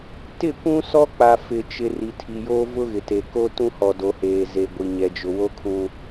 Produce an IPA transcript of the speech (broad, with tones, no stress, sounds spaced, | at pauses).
t ɪ˦˨ kʷ ũ˦ s ɔ˦ k͡p a˨ f ɪ˨ t͡ʃ ɪ˨ r i˨ tʰ i˨ j o˦ v ʊ˦ ɣ ɪ˨ t e˨ k o˦ t ũ˦ h ɔ˨ d o˨ h eː˨ z e˨ ɡʷ i˨ ɲ ɛ˨ d͡ʒ ʊ˨ w o˦ kʰ ũ˨